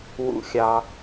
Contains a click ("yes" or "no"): no